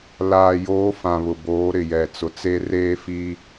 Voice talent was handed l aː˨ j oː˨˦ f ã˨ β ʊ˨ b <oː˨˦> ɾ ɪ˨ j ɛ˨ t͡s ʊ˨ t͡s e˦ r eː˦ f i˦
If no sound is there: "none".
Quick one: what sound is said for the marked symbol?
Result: oː˨˦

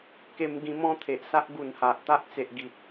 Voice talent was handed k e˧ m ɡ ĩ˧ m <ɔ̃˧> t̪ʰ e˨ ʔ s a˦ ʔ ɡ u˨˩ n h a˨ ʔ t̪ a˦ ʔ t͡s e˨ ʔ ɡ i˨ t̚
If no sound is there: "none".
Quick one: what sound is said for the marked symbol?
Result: ɔ̃˦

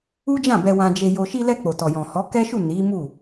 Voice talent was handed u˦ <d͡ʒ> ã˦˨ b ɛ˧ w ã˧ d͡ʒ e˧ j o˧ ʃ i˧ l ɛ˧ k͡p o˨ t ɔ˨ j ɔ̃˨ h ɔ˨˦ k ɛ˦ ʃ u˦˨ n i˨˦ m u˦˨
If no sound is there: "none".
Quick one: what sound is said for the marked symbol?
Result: d͡ʒ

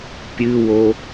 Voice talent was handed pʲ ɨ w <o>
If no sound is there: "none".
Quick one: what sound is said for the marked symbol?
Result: o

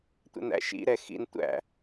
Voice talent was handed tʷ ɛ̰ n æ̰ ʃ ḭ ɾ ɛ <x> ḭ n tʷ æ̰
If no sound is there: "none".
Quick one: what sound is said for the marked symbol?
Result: x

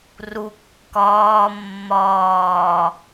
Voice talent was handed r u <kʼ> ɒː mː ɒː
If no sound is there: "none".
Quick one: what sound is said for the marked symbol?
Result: kː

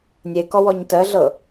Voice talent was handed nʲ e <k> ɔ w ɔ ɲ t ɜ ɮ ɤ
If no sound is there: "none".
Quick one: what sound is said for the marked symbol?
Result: k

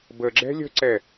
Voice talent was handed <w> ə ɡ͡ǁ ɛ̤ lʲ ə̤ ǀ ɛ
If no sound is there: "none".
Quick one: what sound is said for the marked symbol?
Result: b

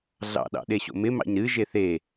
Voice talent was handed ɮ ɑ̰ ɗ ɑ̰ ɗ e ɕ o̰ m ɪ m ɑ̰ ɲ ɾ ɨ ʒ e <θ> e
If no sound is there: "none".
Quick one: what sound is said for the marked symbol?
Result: θ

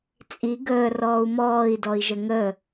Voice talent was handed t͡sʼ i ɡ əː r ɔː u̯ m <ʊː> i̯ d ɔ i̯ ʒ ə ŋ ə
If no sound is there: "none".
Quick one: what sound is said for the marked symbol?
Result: ɔː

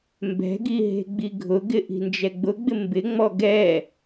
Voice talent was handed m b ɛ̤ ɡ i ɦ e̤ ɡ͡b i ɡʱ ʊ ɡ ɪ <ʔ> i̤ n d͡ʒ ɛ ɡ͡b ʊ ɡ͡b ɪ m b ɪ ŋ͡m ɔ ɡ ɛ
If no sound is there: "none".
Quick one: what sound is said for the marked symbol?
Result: ʔ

